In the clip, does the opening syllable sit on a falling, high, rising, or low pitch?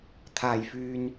low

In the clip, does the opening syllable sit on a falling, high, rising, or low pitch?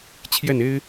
falling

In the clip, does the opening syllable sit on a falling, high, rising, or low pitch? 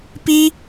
high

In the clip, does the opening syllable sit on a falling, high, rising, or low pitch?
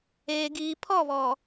low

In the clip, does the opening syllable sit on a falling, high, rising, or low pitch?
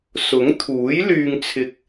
rising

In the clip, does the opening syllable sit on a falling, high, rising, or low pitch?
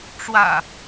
low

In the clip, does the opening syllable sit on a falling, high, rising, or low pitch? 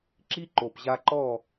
high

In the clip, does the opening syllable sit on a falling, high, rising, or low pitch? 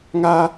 high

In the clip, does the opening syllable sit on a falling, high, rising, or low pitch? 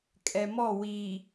low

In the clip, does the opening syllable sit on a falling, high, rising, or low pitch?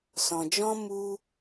low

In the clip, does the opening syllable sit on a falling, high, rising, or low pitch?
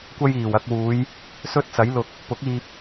high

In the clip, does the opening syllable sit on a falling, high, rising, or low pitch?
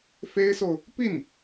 high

